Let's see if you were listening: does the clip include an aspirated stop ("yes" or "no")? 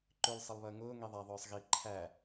yes